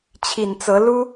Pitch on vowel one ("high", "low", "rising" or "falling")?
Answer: low